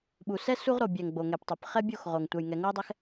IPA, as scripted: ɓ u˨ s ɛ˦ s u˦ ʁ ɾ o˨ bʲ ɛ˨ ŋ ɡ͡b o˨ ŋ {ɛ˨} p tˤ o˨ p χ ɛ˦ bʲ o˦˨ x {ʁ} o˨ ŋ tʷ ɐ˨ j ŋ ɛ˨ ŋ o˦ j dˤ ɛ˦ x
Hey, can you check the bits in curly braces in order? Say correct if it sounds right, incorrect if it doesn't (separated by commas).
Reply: correct, correct